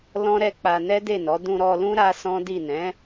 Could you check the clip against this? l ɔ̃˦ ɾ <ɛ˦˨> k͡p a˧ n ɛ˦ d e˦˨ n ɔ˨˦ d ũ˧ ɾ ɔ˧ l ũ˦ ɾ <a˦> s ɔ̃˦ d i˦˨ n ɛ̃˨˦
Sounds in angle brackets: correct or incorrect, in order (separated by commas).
correct, correct